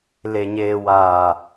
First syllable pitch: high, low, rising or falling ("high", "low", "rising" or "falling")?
low